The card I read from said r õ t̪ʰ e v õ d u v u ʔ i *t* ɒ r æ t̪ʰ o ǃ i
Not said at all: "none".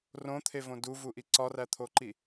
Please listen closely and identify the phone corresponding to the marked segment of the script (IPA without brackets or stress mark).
ǀ